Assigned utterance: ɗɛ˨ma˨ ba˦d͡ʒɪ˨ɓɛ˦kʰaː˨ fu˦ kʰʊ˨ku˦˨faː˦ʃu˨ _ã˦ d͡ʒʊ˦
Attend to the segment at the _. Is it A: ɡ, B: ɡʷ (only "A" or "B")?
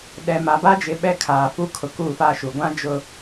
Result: B